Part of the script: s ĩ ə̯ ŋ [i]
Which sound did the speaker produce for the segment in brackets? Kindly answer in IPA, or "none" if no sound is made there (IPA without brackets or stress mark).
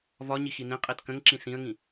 ĩ